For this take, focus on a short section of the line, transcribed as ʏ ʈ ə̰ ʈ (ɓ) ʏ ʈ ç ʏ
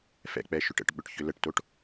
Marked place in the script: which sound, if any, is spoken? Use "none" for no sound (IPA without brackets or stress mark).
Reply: ɓ